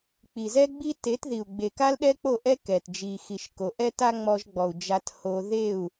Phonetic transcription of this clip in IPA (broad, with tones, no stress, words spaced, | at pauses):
k͡pi˨zɛ˦ɡ͡bi˦ te˨˦tði˨u̯ ɡ͡be˨ka˦lɗɛ˦k͡po˦˨ ʔɛ˦ kɛ˨t d͡ʒi˨xi˨ʃ ko˨ʔɛ˦ ta˦ŋ͡mɔ˧ʒɡ͡bɔ˨u̯ d͡ʒa˦t ho˧ ðe˦˨u̯